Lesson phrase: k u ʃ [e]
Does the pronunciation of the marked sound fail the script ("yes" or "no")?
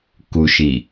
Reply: yes